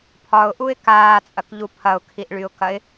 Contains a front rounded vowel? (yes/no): yes